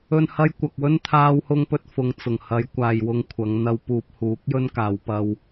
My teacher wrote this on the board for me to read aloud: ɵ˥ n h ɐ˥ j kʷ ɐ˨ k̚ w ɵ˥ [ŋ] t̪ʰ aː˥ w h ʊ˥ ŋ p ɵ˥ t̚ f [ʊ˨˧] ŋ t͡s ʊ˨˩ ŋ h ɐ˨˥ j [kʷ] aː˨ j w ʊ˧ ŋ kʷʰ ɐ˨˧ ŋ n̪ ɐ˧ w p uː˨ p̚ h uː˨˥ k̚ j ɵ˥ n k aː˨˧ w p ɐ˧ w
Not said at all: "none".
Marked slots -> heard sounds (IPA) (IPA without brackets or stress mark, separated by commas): n, ʊ˨, kʷ